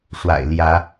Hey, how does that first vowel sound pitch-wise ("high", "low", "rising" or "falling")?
low